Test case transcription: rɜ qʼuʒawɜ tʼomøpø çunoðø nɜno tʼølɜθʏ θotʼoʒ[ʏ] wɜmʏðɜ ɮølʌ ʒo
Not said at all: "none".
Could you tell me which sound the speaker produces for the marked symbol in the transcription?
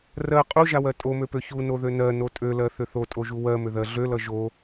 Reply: u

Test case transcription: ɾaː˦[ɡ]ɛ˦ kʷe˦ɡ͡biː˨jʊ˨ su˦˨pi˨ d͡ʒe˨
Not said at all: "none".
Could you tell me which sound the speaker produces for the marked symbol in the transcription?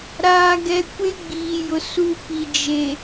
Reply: ɡ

